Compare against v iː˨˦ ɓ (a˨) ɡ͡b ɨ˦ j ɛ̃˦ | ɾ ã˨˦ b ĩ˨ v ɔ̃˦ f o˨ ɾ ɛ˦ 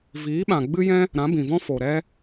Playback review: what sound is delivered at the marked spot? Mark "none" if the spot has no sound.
ã˨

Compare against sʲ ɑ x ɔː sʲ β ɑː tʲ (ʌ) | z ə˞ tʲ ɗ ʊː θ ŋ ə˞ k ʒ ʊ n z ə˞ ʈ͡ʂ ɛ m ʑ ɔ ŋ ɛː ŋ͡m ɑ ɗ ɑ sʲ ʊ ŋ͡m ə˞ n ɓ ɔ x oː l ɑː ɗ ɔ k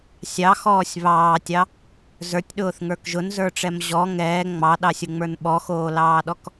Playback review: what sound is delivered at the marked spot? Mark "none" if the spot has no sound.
ɑ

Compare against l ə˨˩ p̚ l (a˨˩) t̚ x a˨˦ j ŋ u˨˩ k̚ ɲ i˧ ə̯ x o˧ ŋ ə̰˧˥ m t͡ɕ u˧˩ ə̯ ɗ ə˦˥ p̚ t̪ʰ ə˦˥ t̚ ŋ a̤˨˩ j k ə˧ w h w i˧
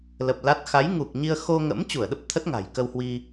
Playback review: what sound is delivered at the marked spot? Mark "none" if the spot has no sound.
a˦˥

